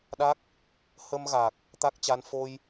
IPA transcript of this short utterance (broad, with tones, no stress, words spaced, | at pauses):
ɗa˦˥k̚ | hə˧mɣa˨˩k̚ | t̪a˦˥k̚t͡ɕa˧n fo˧j